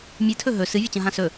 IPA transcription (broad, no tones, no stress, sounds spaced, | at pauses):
mʲ ɨ tʰ ɵ ɦ ɵ s ɨ vʲ ɵ t͡ɕ ɐ̃ ɦ ã s ɵ